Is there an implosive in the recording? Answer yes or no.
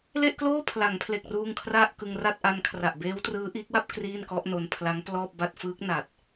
no